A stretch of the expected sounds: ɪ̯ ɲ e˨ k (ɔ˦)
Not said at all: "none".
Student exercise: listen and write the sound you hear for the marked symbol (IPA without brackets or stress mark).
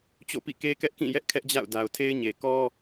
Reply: ɔ˦